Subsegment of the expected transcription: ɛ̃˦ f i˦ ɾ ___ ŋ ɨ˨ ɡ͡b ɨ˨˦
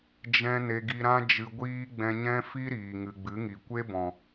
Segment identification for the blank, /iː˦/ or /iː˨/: iː˨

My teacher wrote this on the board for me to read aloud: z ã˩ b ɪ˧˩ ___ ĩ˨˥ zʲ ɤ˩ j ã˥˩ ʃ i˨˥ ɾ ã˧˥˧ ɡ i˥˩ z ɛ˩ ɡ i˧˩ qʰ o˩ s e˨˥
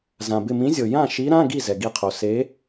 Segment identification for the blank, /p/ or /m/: m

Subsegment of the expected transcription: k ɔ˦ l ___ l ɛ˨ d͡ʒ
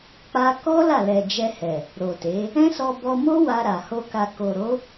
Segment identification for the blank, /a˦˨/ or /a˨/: a˦˨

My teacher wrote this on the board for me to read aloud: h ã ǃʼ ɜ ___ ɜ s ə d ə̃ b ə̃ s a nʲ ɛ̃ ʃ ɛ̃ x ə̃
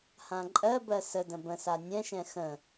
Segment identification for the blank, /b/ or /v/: b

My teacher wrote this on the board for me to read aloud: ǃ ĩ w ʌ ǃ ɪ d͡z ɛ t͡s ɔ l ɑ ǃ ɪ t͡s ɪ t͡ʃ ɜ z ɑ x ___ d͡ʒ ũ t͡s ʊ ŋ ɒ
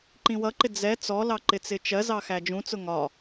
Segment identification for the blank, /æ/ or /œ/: æ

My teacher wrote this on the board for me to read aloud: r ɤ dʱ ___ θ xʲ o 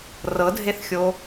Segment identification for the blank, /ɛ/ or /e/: e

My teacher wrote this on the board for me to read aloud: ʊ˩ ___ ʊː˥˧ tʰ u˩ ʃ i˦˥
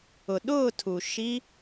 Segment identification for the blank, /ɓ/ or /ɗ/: ɗ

